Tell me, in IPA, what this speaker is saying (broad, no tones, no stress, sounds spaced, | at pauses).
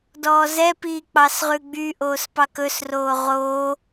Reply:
d ɔː z ɛ p iː k͡p ɑ s ʁ ʉ ɡ͡b y ʔ oː s p ɑ k ɵ s r oː ʁ o